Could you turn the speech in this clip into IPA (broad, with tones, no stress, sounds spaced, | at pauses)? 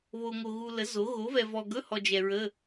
β o˨ ŋ o˨ ɣ u˨ l ə˩˥ z o˩˥ ɣ o˩˥ v ɛ˨ v ɔ˨ ɡ ɵ˧˥˧ h ɔ˨ d͡ʒ ɛ˨ ɹ ə˧˥˧